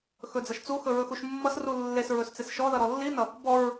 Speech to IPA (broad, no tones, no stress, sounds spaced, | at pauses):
x ɵ d͡z ʌ ʃ t͡s u x ɵ ɹ ɵ x u ʃ mː ʌ s r u lː e s ɹ ɵ s t͡s e s ʃ ɔ ð ʌ ɾ ɔ lː i n ʌ | b ɔ ɹ